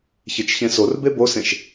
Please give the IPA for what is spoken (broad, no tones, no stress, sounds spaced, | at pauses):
ç e t͡ʃ ç ẽ s o r b e b o s ẽ ʃ